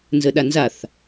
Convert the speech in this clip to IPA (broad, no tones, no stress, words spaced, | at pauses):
nzəɗanzaθ